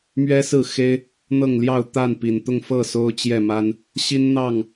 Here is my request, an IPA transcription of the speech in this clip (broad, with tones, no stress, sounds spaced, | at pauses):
m ɥ ɛ˦ s ɹ̩˥˨ x e˦ ɪ̯ | n̪ ɤ˥˨ ŋ l j ɑ˥˨ ʊ̯ t̪ a˥˨ n p i˨˩ n t̪ ʊ˥˨ ŋ f ɤ˥˨ s o˦ ʊ̯ t͡ɕ j ɛ˥˨ m a˦ n | ɕ i˦ n n̪ ɑ˥˨ ŋ